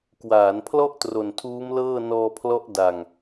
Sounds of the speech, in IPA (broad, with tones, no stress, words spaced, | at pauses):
kwaː˩˦npʰlɔ˥˩ʔ tro˨˩ntʰuː˦˥mlɤː˥˩ nɔː˧pʰlɔ˦˥ʔ da˨˩ŋ